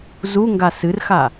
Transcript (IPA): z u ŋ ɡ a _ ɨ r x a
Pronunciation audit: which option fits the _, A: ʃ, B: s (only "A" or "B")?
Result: B